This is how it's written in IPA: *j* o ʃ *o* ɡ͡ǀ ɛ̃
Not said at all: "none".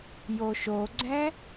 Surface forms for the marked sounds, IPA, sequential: j, o

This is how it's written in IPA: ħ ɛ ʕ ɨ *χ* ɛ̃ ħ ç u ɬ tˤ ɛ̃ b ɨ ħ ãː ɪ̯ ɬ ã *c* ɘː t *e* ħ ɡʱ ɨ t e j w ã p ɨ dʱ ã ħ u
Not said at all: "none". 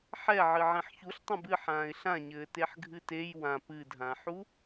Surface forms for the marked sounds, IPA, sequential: ʕ, ɲ, e

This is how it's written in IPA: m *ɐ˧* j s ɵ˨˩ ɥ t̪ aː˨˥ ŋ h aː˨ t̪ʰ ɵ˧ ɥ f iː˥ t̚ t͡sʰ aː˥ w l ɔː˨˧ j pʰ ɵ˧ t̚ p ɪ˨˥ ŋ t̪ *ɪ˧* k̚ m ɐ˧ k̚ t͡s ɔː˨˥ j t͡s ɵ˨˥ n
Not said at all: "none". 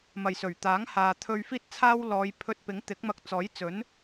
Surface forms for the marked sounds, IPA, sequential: ɐ˨, ɪ˨˥

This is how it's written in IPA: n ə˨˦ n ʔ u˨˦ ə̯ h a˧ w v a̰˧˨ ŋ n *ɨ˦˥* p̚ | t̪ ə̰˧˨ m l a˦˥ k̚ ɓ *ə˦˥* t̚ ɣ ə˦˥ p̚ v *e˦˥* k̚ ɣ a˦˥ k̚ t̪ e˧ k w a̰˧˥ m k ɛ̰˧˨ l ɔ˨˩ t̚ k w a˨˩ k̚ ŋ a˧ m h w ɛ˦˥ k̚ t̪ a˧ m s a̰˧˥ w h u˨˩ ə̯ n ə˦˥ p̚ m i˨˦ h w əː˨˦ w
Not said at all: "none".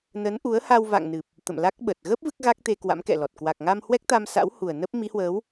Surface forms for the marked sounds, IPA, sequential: ɨ˨˩, ə˨˩, ɨ˦˥

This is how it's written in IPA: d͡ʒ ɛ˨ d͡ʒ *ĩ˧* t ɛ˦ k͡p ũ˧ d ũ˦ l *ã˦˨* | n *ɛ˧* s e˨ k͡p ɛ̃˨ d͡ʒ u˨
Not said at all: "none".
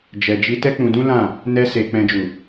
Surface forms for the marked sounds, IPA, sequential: i˧, ã˦˨, ɛ˧

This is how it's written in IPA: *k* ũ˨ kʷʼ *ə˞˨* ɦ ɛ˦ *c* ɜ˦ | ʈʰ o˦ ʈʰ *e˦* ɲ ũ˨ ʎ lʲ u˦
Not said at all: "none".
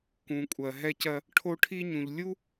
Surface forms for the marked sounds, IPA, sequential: k, ɜ˨, c, i˦

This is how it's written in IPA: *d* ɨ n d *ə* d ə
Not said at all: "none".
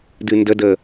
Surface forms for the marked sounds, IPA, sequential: d, ə

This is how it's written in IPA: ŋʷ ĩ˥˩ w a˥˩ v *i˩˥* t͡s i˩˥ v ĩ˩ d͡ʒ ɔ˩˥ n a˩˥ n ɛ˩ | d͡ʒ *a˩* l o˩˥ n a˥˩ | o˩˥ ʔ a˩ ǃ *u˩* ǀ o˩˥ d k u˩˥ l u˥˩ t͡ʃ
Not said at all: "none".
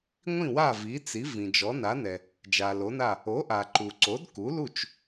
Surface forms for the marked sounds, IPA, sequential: i˩˥, a˩, u˩

